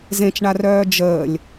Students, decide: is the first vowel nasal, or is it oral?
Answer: nasal